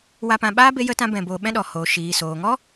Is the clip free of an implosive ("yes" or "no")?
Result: no